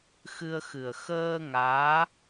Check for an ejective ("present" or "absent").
absent